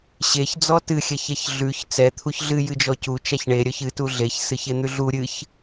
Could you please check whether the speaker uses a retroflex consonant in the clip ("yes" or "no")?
yes